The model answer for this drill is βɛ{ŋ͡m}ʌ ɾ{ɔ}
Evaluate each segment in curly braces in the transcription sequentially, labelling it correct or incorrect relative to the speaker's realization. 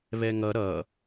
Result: incorrect, incorrect

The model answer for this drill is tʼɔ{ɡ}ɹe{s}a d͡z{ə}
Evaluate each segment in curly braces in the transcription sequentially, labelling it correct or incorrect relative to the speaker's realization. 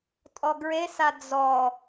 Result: correct, correct, incorrect

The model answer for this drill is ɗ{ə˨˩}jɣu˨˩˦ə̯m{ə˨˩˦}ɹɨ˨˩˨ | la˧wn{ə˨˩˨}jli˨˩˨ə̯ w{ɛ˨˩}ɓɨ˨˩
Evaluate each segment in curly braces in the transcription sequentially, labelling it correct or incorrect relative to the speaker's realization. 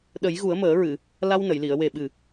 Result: incorrect, incorrect, correct, incorrect

